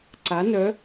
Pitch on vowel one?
rising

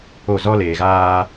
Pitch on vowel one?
falling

